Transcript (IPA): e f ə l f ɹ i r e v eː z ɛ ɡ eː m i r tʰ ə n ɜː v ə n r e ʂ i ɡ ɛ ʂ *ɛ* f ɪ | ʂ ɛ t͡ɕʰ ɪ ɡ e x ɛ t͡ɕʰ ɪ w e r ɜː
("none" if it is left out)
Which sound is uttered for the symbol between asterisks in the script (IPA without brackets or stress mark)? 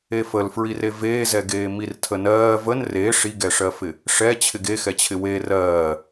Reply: ɜ